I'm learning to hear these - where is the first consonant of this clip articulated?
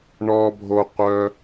retroflex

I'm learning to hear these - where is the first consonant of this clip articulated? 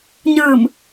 palate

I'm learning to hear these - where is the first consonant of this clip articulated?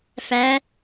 lips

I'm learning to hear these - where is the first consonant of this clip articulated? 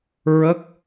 tongue tip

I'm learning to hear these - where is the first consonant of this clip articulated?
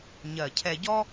palate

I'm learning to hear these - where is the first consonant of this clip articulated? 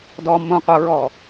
tongue tip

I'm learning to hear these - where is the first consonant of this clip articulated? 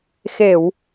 velum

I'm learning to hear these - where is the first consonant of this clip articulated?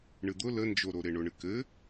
retroflex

